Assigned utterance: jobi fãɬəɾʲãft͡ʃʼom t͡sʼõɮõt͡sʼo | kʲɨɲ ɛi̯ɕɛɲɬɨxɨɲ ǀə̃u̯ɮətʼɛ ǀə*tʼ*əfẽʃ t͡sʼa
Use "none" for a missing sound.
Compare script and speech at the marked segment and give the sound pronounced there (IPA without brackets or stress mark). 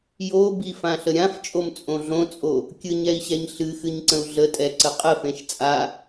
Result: qʼ